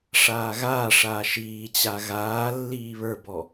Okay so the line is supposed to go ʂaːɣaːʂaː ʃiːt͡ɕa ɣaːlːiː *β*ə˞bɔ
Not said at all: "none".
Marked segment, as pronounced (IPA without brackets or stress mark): β